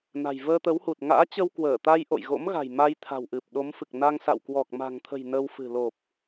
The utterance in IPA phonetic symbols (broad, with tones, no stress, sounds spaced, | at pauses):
n a̤˨˩ j v əː˧ t̪ ə˨˦ w h u˨˩ t̚ ŋ a̰ː˧˥ t͡ɕ ə˧ w k w əː˧˩ t̪ a˧ j ʔ o̰˧˨ j ɣ o̰˧˥ m ɣ a̤˨˩ j m a˧ j t̪ʰ a̤˨˩ w ʔ ɨ˨˩ p̚ ɗ o˨˦ m f ɨ˨˩ k̚ n a˧ ŋ s a̰˧˨ w k w ɔ˨˩ k̚ m a̤˨˩ ŋ t̪ʰ ə̤˨˩ j n ə˧ w f ɨ̤˨˩ l o˨˩ p̚